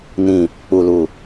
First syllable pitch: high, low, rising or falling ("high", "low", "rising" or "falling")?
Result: low